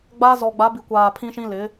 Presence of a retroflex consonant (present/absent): absent